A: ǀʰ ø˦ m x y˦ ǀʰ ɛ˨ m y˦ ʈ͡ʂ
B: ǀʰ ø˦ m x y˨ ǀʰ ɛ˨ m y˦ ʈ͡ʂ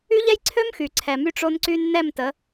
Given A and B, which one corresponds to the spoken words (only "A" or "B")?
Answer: B